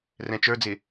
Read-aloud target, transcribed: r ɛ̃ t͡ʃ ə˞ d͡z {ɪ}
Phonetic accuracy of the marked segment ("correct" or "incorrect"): correct